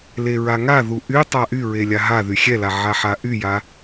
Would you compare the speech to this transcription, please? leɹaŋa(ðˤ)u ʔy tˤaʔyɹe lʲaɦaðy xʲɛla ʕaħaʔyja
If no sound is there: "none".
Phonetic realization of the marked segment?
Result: ð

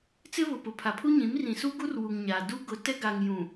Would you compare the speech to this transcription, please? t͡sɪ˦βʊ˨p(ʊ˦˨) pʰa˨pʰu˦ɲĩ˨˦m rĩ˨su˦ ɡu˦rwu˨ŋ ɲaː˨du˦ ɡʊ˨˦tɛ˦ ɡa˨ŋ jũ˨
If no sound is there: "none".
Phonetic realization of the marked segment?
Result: ʊ˨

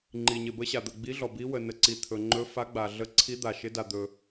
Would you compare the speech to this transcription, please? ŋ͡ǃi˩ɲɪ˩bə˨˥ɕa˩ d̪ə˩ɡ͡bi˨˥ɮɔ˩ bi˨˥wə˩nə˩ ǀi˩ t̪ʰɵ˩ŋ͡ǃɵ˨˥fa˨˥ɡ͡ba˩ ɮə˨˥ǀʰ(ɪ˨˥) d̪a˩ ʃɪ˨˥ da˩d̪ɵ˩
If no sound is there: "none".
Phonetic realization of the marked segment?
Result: i˨˥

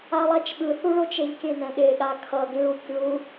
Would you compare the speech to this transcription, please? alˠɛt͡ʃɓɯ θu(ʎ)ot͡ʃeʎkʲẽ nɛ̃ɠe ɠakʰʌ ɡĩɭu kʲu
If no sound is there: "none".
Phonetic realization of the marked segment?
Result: ɭ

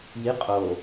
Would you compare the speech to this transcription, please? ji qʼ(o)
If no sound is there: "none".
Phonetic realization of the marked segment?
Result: o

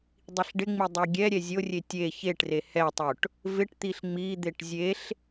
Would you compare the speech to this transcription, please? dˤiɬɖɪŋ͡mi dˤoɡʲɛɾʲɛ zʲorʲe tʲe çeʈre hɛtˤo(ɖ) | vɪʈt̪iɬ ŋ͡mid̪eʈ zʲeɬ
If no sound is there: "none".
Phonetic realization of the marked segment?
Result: ʈ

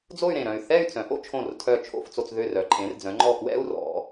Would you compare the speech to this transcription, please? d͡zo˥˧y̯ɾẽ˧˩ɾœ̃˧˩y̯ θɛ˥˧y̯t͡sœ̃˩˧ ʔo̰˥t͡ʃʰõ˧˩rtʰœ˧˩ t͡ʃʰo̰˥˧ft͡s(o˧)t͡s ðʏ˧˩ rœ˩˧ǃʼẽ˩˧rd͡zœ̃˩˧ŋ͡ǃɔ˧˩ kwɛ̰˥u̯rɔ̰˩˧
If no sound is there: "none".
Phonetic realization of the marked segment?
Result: o˧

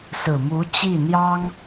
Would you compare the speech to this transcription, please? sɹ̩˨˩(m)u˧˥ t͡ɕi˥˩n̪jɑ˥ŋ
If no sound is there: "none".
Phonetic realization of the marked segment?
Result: m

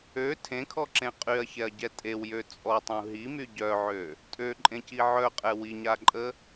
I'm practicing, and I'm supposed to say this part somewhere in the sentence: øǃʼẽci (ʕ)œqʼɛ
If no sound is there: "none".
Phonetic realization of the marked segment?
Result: ʕ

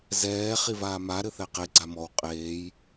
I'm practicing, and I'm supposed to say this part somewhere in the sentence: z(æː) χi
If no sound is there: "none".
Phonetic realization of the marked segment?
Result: ɛː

